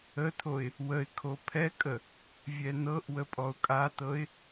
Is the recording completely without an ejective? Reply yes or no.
no